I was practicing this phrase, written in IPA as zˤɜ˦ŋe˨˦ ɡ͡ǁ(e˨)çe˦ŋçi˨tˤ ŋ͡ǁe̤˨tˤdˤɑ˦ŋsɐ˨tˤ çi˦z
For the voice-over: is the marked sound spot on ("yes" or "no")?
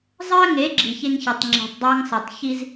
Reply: no